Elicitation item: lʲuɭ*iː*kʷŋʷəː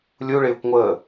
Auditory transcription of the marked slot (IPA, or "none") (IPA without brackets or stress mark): ɪː